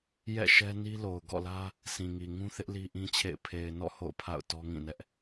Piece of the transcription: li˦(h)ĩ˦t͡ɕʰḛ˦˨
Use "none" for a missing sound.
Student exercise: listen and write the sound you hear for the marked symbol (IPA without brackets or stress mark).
ʔ